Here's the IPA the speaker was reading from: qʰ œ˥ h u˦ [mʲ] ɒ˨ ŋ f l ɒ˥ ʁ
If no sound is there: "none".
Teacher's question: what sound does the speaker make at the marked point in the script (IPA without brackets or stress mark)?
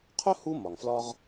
m